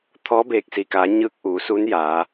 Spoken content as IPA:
t̪ʰ ɔː˧˥ b eː˧˩ k̚ s i˩ k aː˩˧ ɲ ɯː˧ k̚ ʔ uː˩˧ s u˧˥ n j aː˩˧

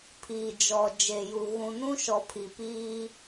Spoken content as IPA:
pʰ iː˨ d͡ʒ ɔ˨ d͡ʒ e˨ j u˨ ɣ ũ˨ n ũ˦ ʃ ɔ˨ pʰ i˨ p iː˦

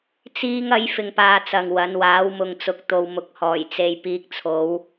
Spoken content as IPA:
t͡s iː˥ ŋ ɐ˥ j f ɪ˧ ŋ p aː˧ t͡s ɐ˨ ŋ w ɐ˨˧ n w aː˨˥ w m ʊ˨ ŋ t͡s ʊ˨ k̚ t̪ o˨ w m ʊ˨ k̚ h ɔː˨˩ j t͡s e˨ j p iː˧ k̚ t͡sʰ o˨˧ w

